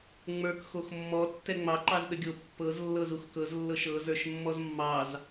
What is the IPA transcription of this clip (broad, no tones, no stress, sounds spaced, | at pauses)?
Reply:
ŋ͡m ə˞ k x o x mː ɔ tː ɛ ŋ͡m ɑ ǃ ɑ z ɗ ə ɡʲ o pː ɤ z lː ɤ z u x k ɤ z lː ɤ ʃ ɤ z ə˞ ʃ mː ɔ z mː ɑ z